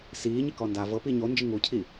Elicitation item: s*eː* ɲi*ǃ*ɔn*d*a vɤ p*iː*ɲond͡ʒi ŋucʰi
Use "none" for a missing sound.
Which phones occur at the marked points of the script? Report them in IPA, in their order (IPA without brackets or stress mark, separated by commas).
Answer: iː, k, d, iː